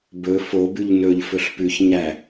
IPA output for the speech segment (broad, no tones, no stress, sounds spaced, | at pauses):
b ɵ f o b ʉ ʎ n ɵ ʎ f ɵ ɬ p ʉ ç ɲ æ